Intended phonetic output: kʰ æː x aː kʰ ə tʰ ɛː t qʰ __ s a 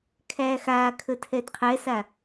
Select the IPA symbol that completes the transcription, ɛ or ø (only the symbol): ɛ